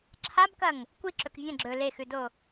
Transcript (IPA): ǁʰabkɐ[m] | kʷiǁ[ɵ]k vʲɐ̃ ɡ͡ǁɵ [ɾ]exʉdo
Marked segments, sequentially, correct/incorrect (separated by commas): incorrect, correct, incorrect